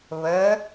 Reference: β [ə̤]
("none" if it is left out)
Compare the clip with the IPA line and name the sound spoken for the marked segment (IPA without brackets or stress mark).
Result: ə